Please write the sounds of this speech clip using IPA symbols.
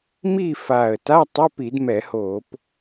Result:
m i˦˨ f a˨˩ ə̯ t a˧˥˧ tˤ ʌ˧˥˧ p i˧˩˧ d m ɛ˧˩˧ h o˧˩˧ p

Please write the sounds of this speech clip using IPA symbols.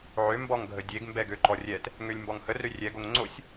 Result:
ʕ ø m b ɔ ŋ ɡʱ ə dʲ e ɡ m b ɛ ɡ ø ǃ ɔ rʲ ɛ t | ŋ ø lʲ m b ɔ ŋ h ə r ø rʲ ɛ ɡ o ŋ ŋ͡ǀ o sʲ

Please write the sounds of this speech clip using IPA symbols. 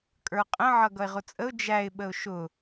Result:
kʼ ə˞ qʼ ə̃ ʕ ʌ ɡ ʌ ɪ̯ ʁ ʊ t͡sʼ ə ʊ̯ d͡ʒ æ ɪ̯ ɓ ə ʊ̯ ʃ ʊ

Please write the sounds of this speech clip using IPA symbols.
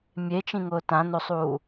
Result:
mʲ e t͡ʃ ĩ ŋ ʊː t ã n o sˤ uː

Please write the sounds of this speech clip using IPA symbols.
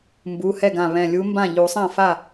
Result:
m b u˩˧˩ h ɛ˥˩ ɡ ã˧˩ β ɛ̃˧˩ lʲ u˧˥ m b ã˥˩ ʎ u˨˩˦ sˤ ã˥˩ f a˥˩

